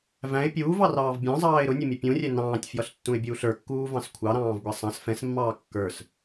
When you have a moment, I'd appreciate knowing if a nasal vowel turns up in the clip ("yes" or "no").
yes